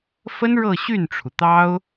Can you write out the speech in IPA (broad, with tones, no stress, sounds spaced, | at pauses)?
f ə˥ n ɻ ɤ˥˧ ɕ y˥˩ n ʈ͡ʂʰ u˩ t̪ ɑ˥ ʊ̯